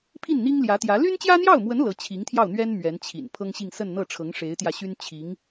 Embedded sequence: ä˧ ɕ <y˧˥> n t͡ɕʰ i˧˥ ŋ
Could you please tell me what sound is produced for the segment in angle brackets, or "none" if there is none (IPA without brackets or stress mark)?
y˥